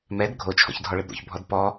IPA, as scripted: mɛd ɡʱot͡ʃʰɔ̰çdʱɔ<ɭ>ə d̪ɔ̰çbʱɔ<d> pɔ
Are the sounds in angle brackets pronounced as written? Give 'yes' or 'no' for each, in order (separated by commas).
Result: yes, yes